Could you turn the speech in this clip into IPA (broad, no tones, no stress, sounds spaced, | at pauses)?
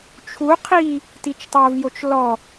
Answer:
t͡ʃʰ u qʰ i | t i t͡ʃ tˤ o v j o t͡ʃ l ɔ